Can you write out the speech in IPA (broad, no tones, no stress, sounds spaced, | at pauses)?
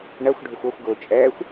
ɳ ɜ xʷ ɖʱ ʊ xʷ ɔ xʷ ɡ ʊː t͡ʃʼ ɛː xʷ